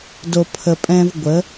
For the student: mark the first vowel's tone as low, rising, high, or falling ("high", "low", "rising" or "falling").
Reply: low